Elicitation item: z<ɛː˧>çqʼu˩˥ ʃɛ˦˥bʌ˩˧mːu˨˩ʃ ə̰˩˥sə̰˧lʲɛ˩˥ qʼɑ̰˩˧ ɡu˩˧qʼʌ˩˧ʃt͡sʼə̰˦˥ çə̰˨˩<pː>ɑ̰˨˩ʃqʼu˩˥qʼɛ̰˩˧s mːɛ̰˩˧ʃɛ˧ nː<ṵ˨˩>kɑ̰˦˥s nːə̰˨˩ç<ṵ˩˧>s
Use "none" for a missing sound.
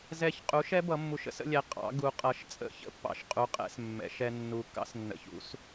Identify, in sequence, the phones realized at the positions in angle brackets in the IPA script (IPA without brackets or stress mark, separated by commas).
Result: ɛ˧, pː, u˨˩, ṵ˦˥